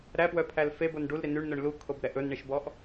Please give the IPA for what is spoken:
ɾ æ p w œ pʰ æ l f e b o n ɖ u l ɾ i n y ɳ n œ ɳ l u kʰ o b ɾ ɛ ʔ ɵ n ɳ i ʃ b ɔ ʔ

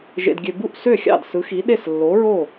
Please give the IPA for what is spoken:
ʒ ḛ˨ d ɡʲ ø˨ b u˥˩ ʔ s ø˥˩ xʲ ɑ̰˥˩ d s ɯ˨˥ x i˨˥ ɗ e˥˩ s lː o˨˥ ɹ o˥˩

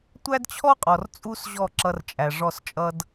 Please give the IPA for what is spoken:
tʷ æ˦ d t͡ɕʰ ɔ˦ qʼ ɔ˨ r t͡sʼ u˦ s ʑ ɔ˦˨ ǁ ʌ˧ r t͡ʃʼ æ˨ ʐ ɔ˦˨ s t͡ʃʼ ʌ˦ d

